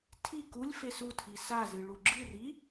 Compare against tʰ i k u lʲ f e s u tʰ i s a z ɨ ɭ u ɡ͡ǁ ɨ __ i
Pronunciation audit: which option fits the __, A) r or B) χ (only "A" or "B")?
A